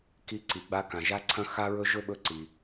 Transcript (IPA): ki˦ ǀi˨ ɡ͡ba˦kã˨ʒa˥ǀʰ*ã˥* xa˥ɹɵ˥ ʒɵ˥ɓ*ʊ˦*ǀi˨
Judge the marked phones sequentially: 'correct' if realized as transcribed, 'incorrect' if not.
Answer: incorrect, incorrect

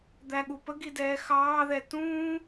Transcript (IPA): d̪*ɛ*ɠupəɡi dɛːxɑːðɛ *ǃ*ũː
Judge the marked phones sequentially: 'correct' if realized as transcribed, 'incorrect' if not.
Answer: incorrect, incorrect

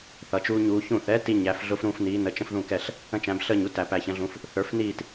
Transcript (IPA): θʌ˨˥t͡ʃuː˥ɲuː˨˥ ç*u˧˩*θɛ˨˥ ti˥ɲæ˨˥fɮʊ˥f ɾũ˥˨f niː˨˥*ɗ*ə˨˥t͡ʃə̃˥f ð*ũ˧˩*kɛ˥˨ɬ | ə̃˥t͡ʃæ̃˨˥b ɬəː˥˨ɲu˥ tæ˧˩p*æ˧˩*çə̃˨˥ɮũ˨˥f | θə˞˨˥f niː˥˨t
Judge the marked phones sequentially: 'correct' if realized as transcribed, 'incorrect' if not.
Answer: incorrect, incorrect, incorrect, correct

